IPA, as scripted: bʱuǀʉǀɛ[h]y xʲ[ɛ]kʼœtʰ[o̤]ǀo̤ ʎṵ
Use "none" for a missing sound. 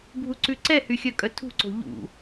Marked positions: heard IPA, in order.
h, œ, ṳ

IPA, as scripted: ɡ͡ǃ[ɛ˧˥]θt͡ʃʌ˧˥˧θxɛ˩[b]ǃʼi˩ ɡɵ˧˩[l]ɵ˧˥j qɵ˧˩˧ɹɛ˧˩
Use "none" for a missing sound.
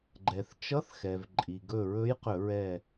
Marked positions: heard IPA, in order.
ɛ˩, v, ɹ

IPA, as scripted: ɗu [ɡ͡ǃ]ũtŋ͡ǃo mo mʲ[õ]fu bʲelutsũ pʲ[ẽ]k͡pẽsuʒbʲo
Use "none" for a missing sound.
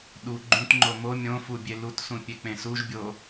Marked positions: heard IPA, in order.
ɡ͡ǃ, õ, e

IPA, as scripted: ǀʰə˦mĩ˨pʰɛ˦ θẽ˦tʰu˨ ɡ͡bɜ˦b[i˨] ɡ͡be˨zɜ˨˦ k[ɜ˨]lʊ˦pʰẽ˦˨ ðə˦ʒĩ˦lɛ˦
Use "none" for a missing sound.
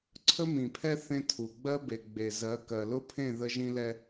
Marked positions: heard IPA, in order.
e˨, ɜ˨

